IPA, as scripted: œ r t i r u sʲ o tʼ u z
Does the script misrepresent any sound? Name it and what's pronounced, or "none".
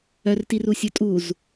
none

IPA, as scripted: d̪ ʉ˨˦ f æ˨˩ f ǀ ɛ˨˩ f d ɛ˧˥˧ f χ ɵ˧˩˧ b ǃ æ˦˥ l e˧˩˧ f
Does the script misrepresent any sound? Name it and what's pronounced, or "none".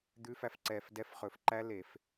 b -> f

